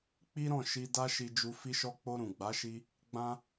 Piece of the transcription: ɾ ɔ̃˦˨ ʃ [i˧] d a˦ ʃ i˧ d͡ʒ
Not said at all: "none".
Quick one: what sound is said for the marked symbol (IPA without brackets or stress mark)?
i˧